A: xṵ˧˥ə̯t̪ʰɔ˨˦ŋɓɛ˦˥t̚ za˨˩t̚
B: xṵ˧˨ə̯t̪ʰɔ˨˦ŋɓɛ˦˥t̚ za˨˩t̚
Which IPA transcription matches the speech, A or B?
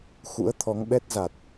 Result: A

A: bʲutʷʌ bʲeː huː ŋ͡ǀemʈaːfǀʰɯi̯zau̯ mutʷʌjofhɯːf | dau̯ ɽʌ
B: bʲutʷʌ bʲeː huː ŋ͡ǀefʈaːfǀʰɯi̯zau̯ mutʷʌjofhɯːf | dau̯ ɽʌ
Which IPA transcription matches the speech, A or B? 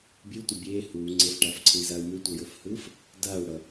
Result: B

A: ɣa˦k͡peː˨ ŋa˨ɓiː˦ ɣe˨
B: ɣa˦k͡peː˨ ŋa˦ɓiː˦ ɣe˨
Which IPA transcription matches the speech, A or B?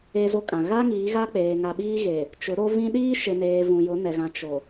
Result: A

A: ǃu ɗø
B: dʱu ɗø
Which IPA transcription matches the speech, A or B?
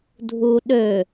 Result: B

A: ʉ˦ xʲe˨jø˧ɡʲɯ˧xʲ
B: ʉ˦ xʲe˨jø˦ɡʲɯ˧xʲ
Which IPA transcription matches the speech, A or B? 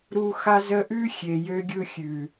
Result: A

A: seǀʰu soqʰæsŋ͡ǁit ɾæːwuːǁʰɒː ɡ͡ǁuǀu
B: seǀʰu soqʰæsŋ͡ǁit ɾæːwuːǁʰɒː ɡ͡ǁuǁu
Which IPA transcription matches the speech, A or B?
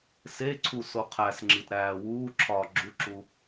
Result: B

